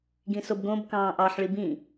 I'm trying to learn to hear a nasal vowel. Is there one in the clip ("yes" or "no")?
yes